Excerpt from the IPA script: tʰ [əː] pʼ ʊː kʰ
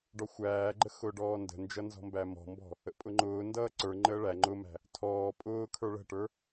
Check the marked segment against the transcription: incorrect: ɔː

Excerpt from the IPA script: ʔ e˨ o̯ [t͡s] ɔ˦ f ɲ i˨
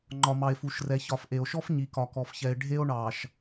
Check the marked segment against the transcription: incorrect: ʃ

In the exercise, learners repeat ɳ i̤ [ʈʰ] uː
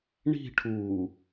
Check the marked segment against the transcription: correct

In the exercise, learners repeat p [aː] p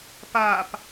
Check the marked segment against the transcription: correct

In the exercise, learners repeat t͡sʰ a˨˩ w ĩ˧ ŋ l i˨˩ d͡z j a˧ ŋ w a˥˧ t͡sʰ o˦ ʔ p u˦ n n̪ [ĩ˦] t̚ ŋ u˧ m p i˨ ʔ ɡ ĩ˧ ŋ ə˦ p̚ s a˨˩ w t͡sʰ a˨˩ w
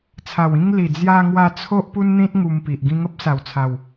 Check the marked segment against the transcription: correct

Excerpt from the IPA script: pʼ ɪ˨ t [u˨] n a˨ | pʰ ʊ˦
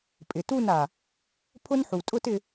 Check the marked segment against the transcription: incorrect: u˦˨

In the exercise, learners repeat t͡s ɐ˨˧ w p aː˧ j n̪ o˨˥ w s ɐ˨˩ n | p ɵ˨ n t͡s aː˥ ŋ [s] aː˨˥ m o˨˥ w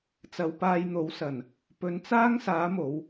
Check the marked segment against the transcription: correct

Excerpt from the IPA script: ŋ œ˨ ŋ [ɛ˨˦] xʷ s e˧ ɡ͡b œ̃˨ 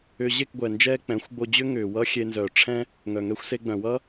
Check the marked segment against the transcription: incorrect: ɛ˧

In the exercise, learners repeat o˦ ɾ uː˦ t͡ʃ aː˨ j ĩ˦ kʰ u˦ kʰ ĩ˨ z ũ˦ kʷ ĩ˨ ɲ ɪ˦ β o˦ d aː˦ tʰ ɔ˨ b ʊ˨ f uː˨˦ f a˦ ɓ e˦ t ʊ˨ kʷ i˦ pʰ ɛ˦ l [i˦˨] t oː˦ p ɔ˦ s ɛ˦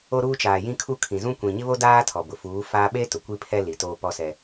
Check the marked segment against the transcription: incorrect: i˨˦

